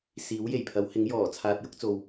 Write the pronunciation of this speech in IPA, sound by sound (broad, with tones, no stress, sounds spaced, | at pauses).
s iː˨˥ w j e˨˩ j pʰ ɐ˨˥ w h ɪ˨˥ ŋ j ɔː˨˩ t͡sʰ aː˧ t̚ j ʊ˥ k̚ t͡s o˨ w